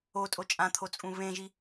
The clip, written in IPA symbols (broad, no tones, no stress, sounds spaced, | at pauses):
o tʼ o t͡ʃʼ ã t̪ʰ o t͡sʼ ũ β ẽ ʒ i